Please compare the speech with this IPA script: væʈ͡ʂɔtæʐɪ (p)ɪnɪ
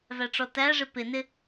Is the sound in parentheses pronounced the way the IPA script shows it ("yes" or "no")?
yes